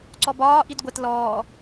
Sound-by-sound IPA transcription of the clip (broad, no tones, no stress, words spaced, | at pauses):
ǀɔbɒː ʔidɡʷɛt lɔː